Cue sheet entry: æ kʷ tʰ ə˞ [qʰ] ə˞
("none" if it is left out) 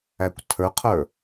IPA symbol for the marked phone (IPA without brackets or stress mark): qʰ